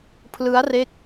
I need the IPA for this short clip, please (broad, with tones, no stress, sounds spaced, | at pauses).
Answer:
pʰ l ɯ˦˥ a̯ r e˦˥ k̚